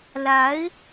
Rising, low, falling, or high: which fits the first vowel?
rising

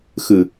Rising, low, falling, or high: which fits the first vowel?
low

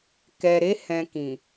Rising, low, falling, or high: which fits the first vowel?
low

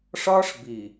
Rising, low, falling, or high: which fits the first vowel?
high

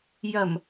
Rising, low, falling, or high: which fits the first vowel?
low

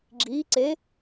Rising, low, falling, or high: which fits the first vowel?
rising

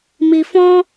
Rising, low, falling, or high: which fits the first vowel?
low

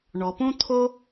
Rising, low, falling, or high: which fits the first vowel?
low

